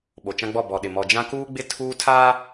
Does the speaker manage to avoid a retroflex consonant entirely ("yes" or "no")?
yes